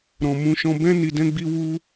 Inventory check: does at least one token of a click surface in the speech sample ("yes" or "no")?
no